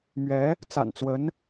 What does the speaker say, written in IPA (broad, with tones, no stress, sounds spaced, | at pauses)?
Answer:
m ɥ ɛ˧˥ | t͡s a̰˨˩ n t͡s w ə˧˥ n